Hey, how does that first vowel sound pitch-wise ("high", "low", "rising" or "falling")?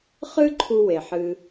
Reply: high